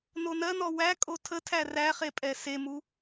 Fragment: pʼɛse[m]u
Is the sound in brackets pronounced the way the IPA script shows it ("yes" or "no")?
yes